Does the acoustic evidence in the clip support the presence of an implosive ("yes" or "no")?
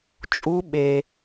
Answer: yes